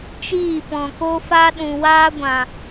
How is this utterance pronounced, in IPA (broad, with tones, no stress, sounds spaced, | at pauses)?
t͡ʃ iː˦˨ p ɔ̃˨ k o˦ f a˦ ɗ ũ˨ w aː˦ ɡʷ ã˨